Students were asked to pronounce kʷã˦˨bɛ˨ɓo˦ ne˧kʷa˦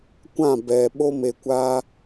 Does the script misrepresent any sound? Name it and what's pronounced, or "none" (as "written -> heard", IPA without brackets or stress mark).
n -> m